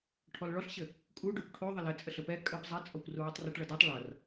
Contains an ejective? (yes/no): yes